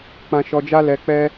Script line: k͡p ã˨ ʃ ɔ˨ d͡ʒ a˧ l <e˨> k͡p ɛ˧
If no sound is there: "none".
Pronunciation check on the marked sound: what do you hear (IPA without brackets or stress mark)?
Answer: ɛ˨